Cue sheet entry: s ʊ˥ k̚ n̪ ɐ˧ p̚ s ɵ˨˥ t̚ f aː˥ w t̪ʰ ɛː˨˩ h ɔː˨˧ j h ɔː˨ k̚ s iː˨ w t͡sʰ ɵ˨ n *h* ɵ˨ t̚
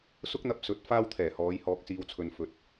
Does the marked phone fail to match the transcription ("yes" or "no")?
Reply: yes